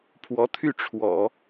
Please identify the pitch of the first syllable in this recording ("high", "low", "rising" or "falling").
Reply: rising